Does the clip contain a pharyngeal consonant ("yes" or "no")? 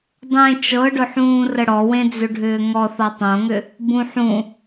yes